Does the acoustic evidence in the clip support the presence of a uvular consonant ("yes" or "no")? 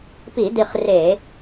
yes